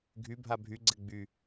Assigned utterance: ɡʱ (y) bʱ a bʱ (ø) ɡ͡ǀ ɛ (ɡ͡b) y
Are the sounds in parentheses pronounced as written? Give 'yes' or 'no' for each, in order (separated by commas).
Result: yes, no, yes